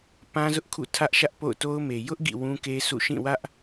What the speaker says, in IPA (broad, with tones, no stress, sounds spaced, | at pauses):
p ã˦ z ʊ˦ ʔ kʰ ṵ˦˨ tʰ ä˦ ʔ ʃ ä˦ ʔ p o̰˦˨ ʊ̯ t o˦ ʊ̯ m e˨ j ʊ˦ ʔ ɡ ḭ˦˨ w ũ˦ k e˦ s ṵ˦˨ ʃ ĩ˦˨ w ä˦ ʔ